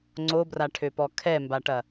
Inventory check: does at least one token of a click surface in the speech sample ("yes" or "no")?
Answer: yes